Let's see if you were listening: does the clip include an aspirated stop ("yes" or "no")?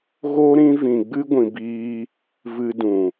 no